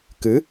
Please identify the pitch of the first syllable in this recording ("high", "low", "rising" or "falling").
rising